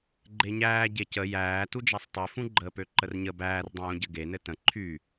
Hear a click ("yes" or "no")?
yes